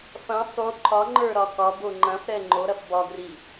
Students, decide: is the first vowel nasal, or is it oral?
nasal